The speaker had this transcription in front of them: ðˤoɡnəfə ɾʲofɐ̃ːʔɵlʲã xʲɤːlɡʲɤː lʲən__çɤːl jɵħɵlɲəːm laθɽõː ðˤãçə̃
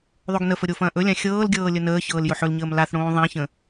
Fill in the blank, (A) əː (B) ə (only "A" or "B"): A